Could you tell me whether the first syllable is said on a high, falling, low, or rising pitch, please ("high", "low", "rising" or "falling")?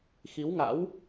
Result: rising